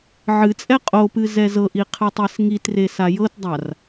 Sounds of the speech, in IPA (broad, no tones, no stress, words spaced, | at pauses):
ʕɨt͡sʼɛ qʼopɨ zɛzɤʔi qʰɨtˤɛsŋitre sajɤtdˤar